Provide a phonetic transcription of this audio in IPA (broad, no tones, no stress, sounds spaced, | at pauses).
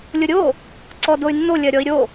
lʲ ʊ ɾʲ o | ǀ ɔ d o y̯ nː o lʲ ɜ ɾʲ ɔ i̯ ɾʲ o